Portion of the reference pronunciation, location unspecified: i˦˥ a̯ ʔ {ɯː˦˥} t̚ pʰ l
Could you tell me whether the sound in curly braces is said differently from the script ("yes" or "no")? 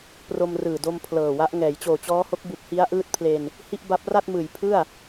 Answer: no